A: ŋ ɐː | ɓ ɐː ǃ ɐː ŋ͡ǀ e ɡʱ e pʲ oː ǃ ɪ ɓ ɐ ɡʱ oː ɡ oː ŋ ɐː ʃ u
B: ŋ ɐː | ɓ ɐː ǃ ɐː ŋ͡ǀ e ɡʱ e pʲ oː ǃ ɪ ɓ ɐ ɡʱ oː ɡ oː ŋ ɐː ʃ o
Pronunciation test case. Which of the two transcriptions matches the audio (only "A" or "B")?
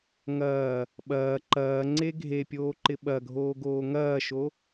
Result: B